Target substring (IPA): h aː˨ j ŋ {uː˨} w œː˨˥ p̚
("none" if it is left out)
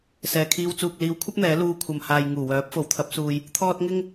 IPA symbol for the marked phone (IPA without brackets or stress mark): uː˨˩